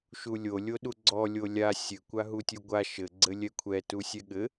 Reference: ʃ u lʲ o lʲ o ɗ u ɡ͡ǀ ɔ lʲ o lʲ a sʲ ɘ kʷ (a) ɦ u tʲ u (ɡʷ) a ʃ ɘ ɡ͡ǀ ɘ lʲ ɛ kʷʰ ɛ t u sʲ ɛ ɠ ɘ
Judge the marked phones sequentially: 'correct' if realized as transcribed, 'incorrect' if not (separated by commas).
correct, correct